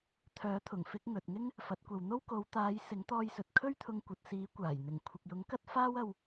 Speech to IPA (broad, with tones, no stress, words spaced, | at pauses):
t̪ʰœː˨˥t̪ʰʊ˨˩ŋfɪ˧k̚ ŋɵ˨t̚ŋɪ˥ŋ | fɐ˨˥t̚kʷɐ˨wn̪o˥w ko˨˧wt̪aː˨˧j sɪ˨˥ŋt̪ɔː˧jsɵ˨t̚ kʰɵ˥ɥt̪ʰʊ˧ŋkʷɐ˨t̚siː˨˥ kʷaː˨˩jn̪ɪ˨˩ŋ kʷʰɪ˨k̚jʊ˨˥ŋkɐ˥t̚ faː˥wɐ˧w